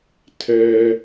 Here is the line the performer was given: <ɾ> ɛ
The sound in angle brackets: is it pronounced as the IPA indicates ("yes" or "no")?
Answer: no